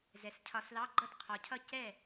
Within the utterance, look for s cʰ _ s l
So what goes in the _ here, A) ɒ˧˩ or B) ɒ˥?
A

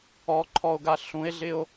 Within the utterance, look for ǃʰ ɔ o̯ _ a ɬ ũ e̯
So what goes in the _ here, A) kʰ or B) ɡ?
B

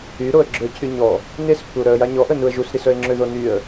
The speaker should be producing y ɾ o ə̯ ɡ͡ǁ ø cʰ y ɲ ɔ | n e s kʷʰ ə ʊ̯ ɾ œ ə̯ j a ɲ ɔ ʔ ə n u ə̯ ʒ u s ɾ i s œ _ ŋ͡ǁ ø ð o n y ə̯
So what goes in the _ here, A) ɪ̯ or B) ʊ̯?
A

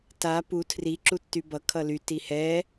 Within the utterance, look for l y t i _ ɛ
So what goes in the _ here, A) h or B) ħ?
A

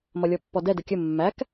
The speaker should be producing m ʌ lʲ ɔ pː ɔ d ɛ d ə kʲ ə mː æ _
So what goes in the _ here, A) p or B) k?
B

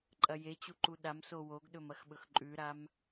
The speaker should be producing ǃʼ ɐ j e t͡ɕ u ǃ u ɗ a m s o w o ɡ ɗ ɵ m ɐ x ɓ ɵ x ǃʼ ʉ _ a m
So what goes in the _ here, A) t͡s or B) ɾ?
B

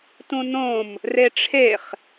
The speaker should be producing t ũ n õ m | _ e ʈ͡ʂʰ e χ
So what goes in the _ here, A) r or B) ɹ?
A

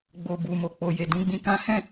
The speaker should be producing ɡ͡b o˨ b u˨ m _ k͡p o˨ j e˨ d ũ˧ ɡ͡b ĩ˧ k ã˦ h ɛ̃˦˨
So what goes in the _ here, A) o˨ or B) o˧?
A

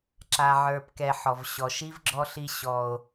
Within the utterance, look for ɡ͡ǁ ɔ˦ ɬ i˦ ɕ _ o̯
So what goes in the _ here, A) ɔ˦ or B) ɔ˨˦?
A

